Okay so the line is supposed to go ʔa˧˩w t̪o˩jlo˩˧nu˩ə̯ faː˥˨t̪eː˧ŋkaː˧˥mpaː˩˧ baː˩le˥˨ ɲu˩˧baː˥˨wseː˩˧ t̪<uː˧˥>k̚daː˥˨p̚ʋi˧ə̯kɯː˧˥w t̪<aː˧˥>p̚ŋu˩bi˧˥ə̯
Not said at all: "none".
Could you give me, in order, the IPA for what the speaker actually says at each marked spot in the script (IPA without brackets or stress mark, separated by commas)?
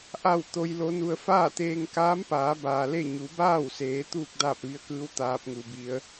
uː˥˨, aː˧˥